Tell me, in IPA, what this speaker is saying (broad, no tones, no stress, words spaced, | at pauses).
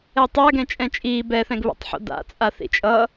ɛtˤa ɡɛ̃t͡ʃʼɛ̃t͡ʃʼiː bɛθɛ̃ɡβɛ̰tˤħo̰ da̰t͡sʼa θḭt͡ʃʼʌ